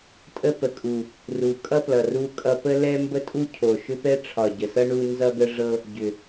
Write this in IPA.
tʼ ə˥ p ə˨˩ kʼ u˨˩ | r u˨˩ kʼ ʌ˥ p l ʌ˨˩ r u˥ kʼ ʌ˥ p ə˥ l ɛ˥ m b ə˥ tʼ u˥ cʰ o˨˩ ʃ ʏ˥ p ɛ˥ ʈ͡ʂʰ ɒ˨˩ ɟ ə˨˩ s ʌ˥ ɳ u˥ n z ʌ˥ ɡ ə˥ ʐ ɤ˥ | ɟ ʏ˨˩

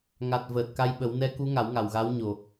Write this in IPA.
ŋ a˨˩ t̚ v əː˨˩ t̚ k a˧ j ɓ ə˨˩˦ w n ɛ˧˥ k u˧˥ ŋ a˨˩˦ w ŋ a˨˩ w ɣ a˧˥ w ɲ o˨˩

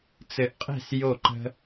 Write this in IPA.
t͡s ɘ˧ ʔ qʼ e̤˥˧ s j o˥˧ ǃ ə̤˥

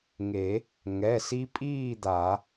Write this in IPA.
ŋ e˨˩˦ | ŋ ɛ˩˧˩ s i˧ pʼ iː˥˨ d̪ a˨˩˦

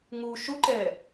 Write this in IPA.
ŋ u ʃ u ǃ ɛ

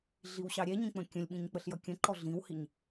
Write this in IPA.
ɮ i w ɕ ɑ ɾʲ ɛ ɲ ĩ k͡p ə̃ kʲ ə̃ lʲ ɓ ĩ ɲ k͡p ə ɬ j ʌ kʲ ə̃ ǃ ɔ ɮ ĩ w h i ɲ

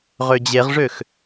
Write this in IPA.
ʁ ø d͡ʑ e ʁ ʐ ø x

